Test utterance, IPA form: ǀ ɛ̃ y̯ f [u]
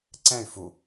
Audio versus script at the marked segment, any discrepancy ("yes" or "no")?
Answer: no